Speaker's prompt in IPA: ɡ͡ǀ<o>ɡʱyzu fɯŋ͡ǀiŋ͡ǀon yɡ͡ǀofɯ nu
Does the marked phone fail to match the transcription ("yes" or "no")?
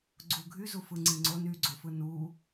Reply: yes